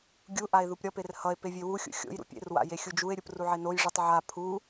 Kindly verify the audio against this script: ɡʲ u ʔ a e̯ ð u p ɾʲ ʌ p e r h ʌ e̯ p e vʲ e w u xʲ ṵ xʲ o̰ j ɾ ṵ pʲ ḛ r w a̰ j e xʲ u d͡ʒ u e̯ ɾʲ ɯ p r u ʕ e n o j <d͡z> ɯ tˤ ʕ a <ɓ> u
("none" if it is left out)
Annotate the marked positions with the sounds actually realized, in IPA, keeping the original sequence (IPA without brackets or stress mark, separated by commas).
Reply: ʐ, pʰ